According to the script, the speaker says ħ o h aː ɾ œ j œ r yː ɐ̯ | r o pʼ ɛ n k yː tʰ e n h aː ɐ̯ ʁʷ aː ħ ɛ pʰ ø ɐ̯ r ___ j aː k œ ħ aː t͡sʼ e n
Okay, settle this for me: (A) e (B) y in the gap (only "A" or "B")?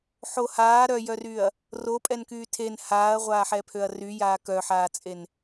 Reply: B